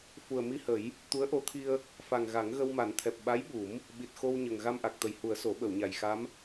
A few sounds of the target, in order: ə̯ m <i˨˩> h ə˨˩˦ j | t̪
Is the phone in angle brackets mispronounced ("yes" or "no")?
yes